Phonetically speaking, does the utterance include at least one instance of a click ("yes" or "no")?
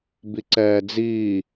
yes